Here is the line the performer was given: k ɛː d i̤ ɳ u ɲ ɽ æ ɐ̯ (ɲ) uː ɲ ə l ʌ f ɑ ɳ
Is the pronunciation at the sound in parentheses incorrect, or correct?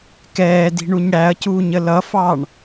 incorrect